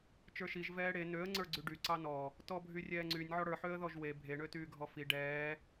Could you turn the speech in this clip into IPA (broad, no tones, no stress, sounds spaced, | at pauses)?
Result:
t͡ʃ ə˞ ʃ i ʒ v ɛː ɽ e n ø ə̯ ŋ͡ǀ ə˞ ɡ͡ǀ y ɖ y ǀ ɑ n ɔ | t ɔ bʱ y rʲ ɛː ŋ͡ǀ y nʲ ʕ ɔ ɽ ə˞ ħ ø ə̯ ð ɔ ʒ w e bʱ e ɳ ø t yː ɡʱ ɔ f i ɖ ɛː